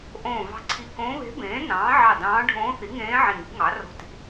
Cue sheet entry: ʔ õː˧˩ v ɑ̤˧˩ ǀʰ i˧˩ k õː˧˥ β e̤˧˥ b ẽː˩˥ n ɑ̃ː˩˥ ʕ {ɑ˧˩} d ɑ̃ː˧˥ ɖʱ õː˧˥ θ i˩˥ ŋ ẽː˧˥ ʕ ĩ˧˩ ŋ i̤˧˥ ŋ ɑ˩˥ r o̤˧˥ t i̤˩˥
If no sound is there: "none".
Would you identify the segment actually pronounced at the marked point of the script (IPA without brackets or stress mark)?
ɑ˧˩